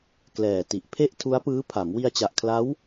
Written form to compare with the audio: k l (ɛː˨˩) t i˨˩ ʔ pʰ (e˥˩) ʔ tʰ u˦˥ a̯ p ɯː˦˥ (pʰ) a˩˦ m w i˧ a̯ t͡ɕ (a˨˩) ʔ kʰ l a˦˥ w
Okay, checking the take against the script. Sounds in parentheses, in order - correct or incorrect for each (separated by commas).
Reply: correct, correct, correct, correct